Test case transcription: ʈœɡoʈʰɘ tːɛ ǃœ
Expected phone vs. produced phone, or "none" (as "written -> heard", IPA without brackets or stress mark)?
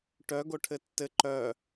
ɛ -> ɘ